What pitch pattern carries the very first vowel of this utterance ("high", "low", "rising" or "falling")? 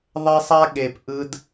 high